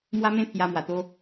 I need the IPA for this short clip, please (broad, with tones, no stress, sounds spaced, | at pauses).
m w a˦ m ẽ˦ pʰ j a˧ m w a˨˩ t̪ o˦